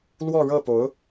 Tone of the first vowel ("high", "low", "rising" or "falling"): falling